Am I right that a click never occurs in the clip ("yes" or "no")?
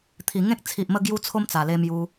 yes